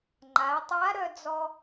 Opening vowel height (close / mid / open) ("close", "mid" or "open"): open